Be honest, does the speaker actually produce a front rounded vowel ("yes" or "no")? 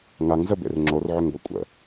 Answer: yes